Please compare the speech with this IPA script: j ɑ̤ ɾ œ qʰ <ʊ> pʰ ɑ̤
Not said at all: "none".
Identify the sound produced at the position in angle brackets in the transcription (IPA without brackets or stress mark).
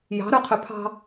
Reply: ɵ